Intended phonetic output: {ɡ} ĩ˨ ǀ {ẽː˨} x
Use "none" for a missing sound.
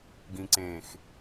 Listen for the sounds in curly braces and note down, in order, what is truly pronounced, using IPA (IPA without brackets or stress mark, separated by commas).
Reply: ɡ, ẽː˨